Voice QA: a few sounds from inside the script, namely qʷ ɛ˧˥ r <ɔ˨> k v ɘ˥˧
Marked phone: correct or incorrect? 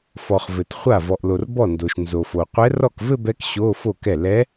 incorrect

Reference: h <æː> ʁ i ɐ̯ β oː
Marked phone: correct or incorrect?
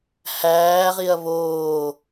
correct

